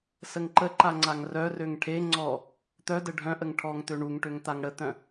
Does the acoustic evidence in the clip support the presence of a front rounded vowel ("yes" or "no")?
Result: yes